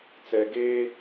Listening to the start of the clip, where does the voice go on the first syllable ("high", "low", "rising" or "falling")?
low